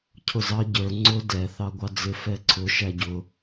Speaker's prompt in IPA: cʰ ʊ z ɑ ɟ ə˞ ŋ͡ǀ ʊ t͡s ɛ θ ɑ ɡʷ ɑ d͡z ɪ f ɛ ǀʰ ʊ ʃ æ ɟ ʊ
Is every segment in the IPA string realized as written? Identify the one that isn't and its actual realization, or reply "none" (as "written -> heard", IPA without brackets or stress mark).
t͡s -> d